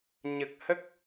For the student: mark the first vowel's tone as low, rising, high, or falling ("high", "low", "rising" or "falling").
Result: low